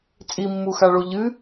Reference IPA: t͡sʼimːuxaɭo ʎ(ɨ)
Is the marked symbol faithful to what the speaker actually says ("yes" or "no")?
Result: yes